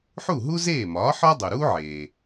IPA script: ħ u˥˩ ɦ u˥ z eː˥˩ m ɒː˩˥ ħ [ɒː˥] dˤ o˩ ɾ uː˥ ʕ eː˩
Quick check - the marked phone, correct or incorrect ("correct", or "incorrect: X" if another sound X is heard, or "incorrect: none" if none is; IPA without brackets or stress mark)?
incorrect: ɒ˥